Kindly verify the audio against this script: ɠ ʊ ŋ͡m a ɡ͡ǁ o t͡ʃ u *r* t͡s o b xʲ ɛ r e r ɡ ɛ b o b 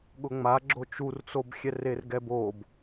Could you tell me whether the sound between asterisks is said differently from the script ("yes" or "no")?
no